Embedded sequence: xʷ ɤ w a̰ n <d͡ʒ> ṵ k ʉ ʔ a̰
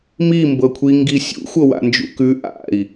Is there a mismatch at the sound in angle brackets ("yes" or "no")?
no